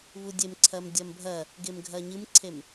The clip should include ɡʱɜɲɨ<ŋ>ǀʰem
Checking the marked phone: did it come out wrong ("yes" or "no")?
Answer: yes